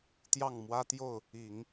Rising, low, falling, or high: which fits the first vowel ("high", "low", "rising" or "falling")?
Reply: falling